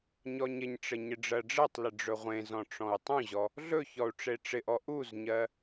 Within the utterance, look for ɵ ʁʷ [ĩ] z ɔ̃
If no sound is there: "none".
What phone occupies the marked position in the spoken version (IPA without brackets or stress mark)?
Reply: ẽ